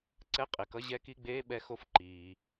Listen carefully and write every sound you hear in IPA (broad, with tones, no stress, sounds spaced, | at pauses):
ǀ ɛ˧˥˧ qʼ e˩ k ʌ˧˥˧ ʑ ɛ˧˥˧ k i˧˥˧ ɡ͡b eː˧˥˧ ɓ ɛ˦˨ x o˦˨ f ǃ iː˩